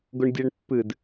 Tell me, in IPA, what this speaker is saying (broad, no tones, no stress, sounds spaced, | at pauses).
ɡ ʊ ɳ dʲ ɛ ɳ pː ɨ d